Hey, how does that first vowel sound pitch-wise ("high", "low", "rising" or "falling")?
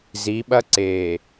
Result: rising